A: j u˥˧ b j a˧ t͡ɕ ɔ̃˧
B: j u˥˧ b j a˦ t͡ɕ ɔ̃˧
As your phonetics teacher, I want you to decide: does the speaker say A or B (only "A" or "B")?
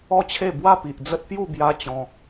B